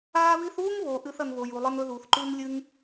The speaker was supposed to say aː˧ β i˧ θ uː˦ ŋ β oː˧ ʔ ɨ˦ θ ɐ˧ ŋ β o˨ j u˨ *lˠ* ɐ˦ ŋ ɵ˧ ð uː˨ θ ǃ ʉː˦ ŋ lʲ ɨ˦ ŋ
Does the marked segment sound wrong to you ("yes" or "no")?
no